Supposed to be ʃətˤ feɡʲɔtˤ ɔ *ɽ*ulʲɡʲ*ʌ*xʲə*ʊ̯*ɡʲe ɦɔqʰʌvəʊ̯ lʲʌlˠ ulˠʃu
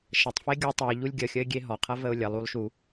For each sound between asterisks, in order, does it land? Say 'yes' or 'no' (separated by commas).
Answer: no, no, no